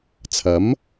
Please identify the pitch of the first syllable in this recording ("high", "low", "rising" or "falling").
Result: rising